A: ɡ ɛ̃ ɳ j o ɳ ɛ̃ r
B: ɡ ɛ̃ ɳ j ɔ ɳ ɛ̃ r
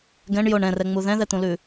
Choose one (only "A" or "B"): A